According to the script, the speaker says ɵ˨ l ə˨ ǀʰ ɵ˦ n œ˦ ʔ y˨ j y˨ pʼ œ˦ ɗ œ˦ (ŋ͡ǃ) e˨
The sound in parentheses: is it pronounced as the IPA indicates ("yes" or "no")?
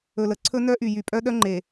yes